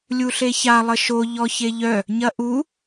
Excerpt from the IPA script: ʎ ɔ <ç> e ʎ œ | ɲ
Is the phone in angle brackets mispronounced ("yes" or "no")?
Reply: no